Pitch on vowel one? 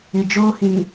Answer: low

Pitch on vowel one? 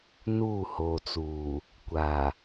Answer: falling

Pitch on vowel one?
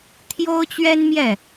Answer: high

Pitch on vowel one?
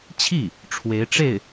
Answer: falling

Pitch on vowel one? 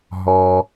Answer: high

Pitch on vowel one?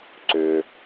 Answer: low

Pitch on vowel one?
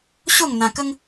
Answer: falling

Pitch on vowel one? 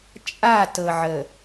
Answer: falling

